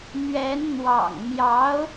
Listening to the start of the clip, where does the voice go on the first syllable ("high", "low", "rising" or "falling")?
rising